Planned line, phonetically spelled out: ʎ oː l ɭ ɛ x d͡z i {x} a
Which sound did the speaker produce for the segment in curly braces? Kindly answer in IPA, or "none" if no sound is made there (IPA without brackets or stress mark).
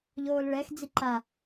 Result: ǃ